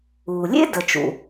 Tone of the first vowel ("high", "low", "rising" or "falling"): low